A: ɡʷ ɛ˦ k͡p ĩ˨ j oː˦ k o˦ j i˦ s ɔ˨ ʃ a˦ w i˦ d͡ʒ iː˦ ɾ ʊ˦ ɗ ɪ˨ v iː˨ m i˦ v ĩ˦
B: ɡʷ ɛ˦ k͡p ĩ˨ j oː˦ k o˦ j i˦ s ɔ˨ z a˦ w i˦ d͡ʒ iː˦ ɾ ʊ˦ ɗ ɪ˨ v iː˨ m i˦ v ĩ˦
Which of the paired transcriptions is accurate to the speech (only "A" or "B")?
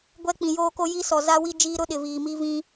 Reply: B